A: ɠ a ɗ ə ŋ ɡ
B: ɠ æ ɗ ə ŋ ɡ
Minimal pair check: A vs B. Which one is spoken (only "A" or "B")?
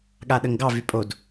A